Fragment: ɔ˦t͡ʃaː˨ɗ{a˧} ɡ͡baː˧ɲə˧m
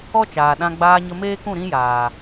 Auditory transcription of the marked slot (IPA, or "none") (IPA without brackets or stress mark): ã˧